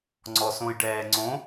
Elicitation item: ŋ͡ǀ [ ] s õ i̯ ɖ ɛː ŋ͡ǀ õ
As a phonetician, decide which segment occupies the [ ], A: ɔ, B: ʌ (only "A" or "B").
A